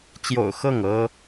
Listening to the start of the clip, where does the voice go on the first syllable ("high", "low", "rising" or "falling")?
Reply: low